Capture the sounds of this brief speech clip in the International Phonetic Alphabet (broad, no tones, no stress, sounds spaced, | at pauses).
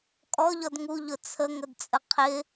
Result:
kʼ ɔ ʎ ɔ d ŋ u ʎ ʊ t͡sʰ ə ŋ ə d t͡sʼ ə qʰ ɪ